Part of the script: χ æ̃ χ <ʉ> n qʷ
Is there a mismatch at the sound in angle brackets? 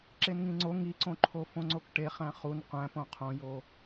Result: yes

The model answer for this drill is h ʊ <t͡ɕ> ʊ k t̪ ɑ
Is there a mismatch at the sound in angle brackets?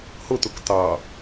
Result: yes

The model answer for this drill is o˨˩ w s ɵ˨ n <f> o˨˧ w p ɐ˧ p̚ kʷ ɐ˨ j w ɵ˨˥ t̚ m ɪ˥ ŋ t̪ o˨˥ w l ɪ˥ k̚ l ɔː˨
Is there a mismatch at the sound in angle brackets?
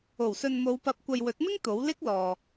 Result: yes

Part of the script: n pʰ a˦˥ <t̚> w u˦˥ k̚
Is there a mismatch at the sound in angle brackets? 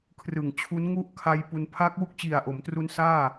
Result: yes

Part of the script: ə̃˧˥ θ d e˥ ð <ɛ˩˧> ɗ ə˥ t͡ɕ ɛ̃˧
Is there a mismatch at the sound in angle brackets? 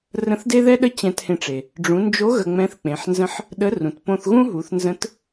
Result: yes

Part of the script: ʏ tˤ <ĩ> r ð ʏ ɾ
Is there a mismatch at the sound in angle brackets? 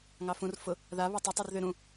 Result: yes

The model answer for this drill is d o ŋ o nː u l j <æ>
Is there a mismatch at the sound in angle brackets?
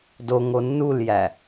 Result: no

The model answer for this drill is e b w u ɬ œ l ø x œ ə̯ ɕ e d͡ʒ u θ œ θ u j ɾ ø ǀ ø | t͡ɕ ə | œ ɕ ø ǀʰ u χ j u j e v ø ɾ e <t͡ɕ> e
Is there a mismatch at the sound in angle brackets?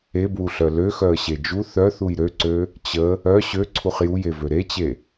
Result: no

